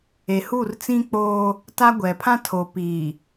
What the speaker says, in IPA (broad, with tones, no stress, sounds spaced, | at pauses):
e˨ h u˦˨ r t͡s ĩ˦ k͡p oː˦ | t a˦ ɡʷ ɛ˨ pʰ ã˦ tʰ o˨ p iː˨